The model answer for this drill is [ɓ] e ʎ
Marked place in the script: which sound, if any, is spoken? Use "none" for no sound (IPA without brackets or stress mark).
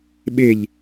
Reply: ɓ